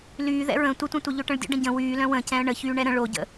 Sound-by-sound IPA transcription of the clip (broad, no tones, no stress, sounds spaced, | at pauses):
l yː ð ɛ̰ ɹ ə̃ tʷ ə tʷ ɛ̃ tʷ œ ʎ ø ʈ ə̃ ɭ dʲ ə̰ ɖ ə̃ ɟ ə̃ w yː l œ̃ w ə̃ c ɛ̃ ə̯ ɳ ə ç yː ɳ ɛ ɾ ə̃ ɭ o ɟ ə̰